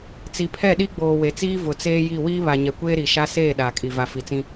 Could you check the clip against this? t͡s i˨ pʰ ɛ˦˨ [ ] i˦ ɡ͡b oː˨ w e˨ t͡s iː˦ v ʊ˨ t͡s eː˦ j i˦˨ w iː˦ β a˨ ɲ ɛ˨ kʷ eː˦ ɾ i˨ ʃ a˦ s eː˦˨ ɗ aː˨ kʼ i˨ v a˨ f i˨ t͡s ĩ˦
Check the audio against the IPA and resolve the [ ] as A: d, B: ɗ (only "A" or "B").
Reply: B